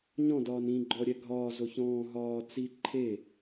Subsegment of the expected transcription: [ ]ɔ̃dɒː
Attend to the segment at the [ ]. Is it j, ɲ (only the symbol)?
ɲ